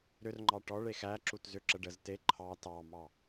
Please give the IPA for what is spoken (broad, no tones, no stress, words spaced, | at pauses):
ɾʏrŋ͡ǃɑ ʈɔɭ exæǁut zʏǁə ɖəz te ǃʰɑ tɑmɑ